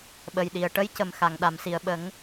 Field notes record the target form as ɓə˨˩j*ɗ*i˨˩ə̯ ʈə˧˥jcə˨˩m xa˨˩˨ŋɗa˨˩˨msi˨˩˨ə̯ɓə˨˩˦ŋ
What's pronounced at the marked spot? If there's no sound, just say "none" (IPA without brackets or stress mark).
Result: ɗ